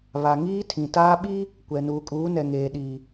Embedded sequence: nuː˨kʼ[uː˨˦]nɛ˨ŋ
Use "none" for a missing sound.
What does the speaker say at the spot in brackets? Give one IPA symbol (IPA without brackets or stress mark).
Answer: uː˨˦